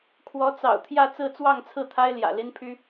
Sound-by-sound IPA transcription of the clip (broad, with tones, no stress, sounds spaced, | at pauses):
kʰ w ɔ˧˥ t͡s ɑ̰˨˩ ʊ̯ t̪ʰ j ä˥˧ t͡s ɹ̩˥˧ t͡s w ɑ˥˧ ŋ t͡sʰ ɹ̩˥˩ t̪ʰ a˥ ɪ̯ l j ä̰˨˩ l i˥ n pʰ y˥